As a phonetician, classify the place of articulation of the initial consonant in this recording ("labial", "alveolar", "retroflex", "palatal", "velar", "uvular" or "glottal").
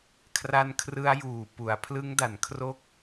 velar